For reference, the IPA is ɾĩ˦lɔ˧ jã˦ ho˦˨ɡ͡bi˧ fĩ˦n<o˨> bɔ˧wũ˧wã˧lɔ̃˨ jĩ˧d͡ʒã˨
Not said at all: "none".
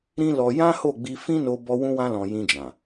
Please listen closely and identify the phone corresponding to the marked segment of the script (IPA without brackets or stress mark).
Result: o˧